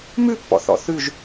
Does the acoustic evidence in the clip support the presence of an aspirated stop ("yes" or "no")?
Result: no